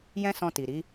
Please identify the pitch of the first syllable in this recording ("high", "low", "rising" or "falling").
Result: high